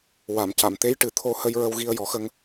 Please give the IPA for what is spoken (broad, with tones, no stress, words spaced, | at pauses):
wa˨˩˨m ca˨˩˨mt̪e˧˥jʈɨ˨˩ t̪ʰo˧hə˧jɹə˧w ɣi˧ə̯jɔ˨˩˦xə˧ŋ